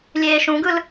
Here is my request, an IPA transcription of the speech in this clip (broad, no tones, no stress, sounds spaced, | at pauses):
lʲ eː ʃ ũ ɡ ɯ l